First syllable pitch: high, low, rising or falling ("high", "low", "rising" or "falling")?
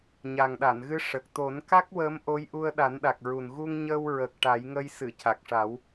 low